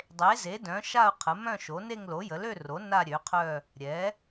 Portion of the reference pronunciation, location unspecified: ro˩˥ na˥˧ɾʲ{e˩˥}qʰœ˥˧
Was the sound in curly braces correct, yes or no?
no